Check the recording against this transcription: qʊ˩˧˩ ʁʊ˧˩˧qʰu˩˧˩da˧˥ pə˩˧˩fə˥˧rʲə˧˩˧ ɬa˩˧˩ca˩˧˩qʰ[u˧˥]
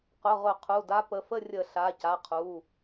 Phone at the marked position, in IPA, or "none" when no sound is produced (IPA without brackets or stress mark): u˩˧˩